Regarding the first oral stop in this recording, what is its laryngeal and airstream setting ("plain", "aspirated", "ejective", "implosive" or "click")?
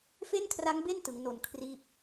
aspirated